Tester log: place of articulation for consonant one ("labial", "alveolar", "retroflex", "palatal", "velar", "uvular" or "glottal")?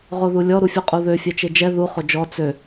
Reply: uvular